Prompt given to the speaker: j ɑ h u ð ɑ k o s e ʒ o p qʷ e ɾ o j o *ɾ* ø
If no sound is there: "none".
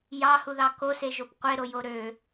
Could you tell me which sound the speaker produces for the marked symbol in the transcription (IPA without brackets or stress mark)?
ɾ